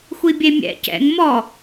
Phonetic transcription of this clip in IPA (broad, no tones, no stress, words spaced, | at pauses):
xʷibʲemʲɛ̰ cɛ̰ŋ mɔ